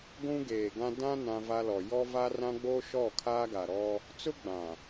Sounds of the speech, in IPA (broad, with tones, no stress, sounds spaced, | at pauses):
ɡʷ ũ˦ ɡ eː˨ ɡ ã˦ d ã˦ n ã˦ v a˦ l ɔ˨ j ɔ˦ v a˦ r ã˦ ɡ͡b o˦ ʃ ɔ˦˨ kʰ aː˦ ɡ a˨ ɾ ɔ˦ | t͡s ʊ˦ ɡ͡b ã˨